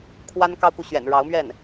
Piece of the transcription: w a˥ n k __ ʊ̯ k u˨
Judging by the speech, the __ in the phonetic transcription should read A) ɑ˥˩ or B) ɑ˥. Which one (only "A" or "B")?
B